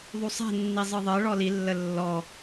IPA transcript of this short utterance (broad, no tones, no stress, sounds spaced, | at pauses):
ðˤ u sˤ ɛ̤ nː i zˤ ɯ ðˤ ɜ ɭ ɔ l i lː ə lː ɔ